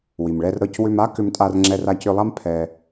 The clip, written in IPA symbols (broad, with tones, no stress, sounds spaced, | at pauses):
w i˩ m ɭ ɛ˧ r ɾ ɤ˧ c w ʏ˧ m a˥ k ʏ˧ m tʼ a˧ r ŋ͡ǁ ɛ˧ r a˧ c ʏ˧ lˠ a˥ m pʰ ɛ˧